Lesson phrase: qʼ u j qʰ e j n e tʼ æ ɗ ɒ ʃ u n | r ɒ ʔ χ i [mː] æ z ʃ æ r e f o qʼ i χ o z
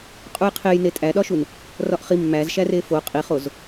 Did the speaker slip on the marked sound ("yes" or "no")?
no